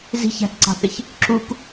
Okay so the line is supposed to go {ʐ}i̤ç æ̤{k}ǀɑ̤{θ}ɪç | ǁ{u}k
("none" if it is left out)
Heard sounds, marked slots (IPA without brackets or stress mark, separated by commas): z, k, θ, u